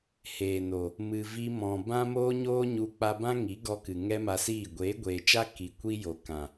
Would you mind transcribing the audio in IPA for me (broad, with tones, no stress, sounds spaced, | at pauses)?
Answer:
h eː˨ n o˨ | m ɨ˨ v i˧ m ɔ̃˨ b ã˦ m oː˦ ɲ oː˦ ɲ u˧ k͡p a˧ b ã˦ ŋ i˨˦ ɡ ɔ˧ k ɨ˨ ŋ ɛ˦ m a˧ s iː˦˨ ɡʷ eː˨˦ ɡʷ eː˨ t͡ʃ a˦ k i˨ kʷ i˦ j o˨ k ã˨